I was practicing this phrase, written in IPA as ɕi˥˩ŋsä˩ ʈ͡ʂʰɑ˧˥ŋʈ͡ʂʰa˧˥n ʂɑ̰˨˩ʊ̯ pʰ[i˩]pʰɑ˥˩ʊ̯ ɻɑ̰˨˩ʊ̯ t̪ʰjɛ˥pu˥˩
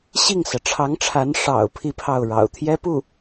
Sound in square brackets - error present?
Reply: yes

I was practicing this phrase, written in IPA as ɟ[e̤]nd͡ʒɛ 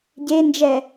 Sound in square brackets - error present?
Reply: yes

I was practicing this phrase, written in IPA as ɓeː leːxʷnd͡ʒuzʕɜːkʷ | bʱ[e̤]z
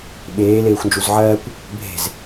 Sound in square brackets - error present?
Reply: no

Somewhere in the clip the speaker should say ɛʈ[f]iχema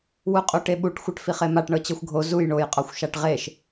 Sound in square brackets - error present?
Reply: no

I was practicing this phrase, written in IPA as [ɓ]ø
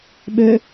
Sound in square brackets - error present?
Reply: no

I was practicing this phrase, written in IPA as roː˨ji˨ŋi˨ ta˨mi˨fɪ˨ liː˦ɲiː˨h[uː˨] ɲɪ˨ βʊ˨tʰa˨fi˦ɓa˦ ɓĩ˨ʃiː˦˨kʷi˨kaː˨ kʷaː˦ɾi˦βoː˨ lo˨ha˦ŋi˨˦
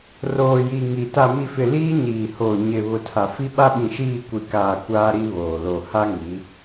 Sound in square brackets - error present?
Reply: yes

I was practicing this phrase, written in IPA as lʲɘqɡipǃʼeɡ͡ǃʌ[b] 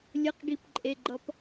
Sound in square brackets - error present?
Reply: yes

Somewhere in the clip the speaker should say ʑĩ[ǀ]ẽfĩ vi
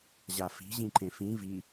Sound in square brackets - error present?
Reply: yes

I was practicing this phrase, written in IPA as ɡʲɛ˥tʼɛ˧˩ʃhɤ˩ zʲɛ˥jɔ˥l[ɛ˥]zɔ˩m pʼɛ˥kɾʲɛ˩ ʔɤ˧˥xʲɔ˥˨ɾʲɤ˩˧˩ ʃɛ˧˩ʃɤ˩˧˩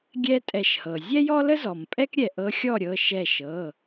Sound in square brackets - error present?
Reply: yes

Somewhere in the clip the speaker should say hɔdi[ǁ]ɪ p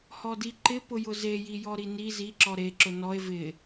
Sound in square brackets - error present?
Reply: yes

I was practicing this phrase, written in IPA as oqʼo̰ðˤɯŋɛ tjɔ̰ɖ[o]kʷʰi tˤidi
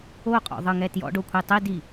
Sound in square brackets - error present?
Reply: no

